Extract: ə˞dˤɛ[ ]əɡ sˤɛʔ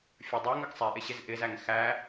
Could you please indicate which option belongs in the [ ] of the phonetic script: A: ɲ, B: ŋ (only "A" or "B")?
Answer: B